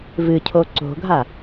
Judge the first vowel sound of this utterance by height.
high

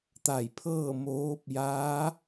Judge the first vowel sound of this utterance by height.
low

